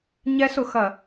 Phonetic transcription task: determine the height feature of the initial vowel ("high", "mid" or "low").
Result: mid